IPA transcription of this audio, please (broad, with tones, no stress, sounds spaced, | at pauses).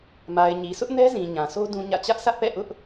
m a˨ ɪ̯ ɲ i˨ sʰ ʊ˦ ʔ n ɛ˦ z ĩ˨ ɲ ã˨ sʰ o˦ d ũ˦ ɲ ä̰˦˨ t͡ɕ ä˦ ʔ sʰ ä˦ ʔ p ɛ̰˦˨ ʔ ʊ˦ ʔ